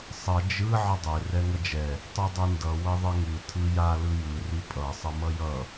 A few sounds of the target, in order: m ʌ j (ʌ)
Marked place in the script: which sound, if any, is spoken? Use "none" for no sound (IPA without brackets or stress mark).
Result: ʌ